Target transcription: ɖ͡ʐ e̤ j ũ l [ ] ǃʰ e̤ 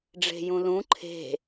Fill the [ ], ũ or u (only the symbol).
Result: ũ